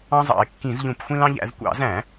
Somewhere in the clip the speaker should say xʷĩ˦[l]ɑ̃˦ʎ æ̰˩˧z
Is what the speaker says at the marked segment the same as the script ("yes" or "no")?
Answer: yes